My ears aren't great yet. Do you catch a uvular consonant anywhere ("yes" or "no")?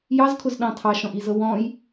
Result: no